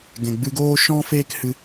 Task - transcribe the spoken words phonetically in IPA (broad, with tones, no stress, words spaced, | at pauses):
ɡɛ̃˨ɡ͡bɨ˧ɡoː˦ ʃɔ̃˦ feː˦khɨ˧